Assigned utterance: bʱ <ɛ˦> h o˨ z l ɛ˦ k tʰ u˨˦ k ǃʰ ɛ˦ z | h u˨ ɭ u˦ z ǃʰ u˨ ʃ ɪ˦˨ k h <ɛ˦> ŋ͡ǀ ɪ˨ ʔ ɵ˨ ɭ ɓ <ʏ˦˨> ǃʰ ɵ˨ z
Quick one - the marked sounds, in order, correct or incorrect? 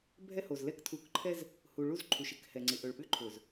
correct, incorrect: ɛ˨, incorrect: ʏ˦

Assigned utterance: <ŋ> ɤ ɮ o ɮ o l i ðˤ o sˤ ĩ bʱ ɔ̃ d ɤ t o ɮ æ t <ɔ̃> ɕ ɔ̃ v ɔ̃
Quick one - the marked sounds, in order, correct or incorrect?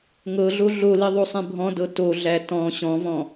correct, correct

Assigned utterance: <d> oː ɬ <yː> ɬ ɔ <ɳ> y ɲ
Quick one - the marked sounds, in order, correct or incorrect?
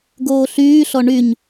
incorrect: ɡ, correct, correct

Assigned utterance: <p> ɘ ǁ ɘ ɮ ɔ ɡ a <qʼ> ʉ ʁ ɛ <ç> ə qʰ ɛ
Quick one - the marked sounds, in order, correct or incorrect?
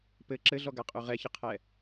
correct, correct, correct

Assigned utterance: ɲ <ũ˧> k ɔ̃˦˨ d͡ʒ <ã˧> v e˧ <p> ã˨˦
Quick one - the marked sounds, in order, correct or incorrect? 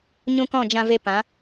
correct, correct, correct

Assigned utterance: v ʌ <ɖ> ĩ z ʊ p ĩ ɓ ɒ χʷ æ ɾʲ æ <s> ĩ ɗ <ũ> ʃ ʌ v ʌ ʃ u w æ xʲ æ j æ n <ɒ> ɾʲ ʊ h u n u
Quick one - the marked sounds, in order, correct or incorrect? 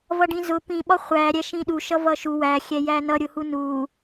correct, incorrect: ʃ, incorrect: u, incorrect: ʌ

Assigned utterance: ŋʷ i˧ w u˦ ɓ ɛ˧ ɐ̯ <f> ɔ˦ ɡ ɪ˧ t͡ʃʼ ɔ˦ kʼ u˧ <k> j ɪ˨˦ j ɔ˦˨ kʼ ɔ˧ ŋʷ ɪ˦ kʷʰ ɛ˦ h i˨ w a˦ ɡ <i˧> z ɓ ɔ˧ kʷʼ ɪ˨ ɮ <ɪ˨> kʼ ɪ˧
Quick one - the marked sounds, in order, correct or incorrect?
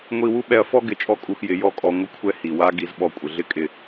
correct, incorrect: x, correct, incorrect: ɪ˦

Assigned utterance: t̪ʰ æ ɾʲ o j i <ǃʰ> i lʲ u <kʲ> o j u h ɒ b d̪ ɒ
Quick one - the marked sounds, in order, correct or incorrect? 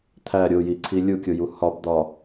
incorrect: ǀʰ, correct

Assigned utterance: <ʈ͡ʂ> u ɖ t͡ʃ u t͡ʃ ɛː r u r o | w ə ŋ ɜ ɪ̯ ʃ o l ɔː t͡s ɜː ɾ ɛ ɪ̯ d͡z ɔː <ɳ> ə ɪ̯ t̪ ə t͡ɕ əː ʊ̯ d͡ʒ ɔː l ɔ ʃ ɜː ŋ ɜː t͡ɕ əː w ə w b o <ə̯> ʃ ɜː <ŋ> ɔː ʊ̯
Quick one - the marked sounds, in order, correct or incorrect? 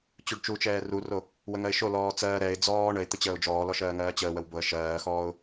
incorrect: t͡ɕ, correct, correct, incorrect: x

